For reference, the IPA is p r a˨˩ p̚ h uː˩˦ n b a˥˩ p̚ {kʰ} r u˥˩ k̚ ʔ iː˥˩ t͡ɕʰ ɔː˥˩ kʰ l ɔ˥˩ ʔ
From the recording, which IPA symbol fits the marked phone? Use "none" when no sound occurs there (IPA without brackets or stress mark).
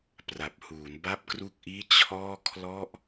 k